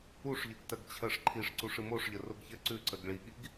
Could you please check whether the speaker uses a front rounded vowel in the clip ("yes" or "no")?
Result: no